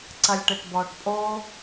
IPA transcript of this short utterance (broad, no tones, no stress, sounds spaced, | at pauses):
ǀ ɐ lʲ ʈ e ʈ b ɔː ʈ pʼ o